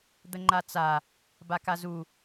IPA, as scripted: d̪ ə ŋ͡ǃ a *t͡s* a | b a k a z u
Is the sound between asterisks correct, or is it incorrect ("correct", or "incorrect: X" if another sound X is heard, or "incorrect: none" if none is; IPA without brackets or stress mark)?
correct